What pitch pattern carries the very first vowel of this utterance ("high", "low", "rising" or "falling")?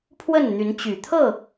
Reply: falling